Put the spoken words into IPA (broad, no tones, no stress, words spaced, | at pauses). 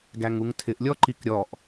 ɡæŋuŋtʰɪʔ lʲɔǃikɾʲɔʔ